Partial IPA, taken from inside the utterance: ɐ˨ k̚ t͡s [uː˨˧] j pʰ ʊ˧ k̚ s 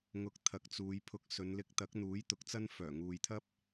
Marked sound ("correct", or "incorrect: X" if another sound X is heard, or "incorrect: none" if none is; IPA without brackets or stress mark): correct